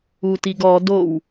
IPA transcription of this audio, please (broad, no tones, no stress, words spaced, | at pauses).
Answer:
utiɡɔ dow